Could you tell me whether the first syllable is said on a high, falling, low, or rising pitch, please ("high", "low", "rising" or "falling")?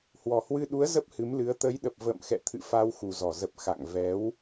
low